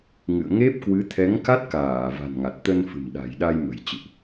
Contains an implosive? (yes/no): yes